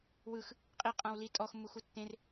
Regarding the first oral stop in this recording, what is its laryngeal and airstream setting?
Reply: ejective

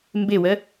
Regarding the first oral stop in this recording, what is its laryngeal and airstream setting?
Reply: plain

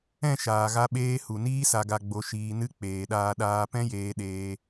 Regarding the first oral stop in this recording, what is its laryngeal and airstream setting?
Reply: implosive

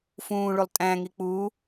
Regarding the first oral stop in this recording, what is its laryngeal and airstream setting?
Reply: ejective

